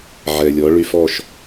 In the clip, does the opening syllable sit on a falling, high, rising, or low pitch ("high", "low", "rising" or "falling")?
low